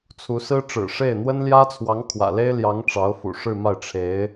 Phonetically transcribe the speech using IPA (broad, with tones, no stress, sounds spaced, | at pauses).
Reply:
t͡sʰ u˧˥ s ɹ̩˥ ʈ͡ʂ ɻ̩˨˩ ʂ e˥˩ ɪ̯ n̪ w ə˥ n l j ä˥ t͡sʰ w ɑ˧˥ ŋ kʰ w ä̰˨˩ l e˥ ɪ̯ l j ɑ˧˥ ŋ ʈ͡ʂ ɑ˧˥ ʊ̯ f ṵ˨˩ ʂ ɻ̩˥˧ m a˥˩ ɪ̯ ʈ͡ʂʰ e˧˥ ɪ̯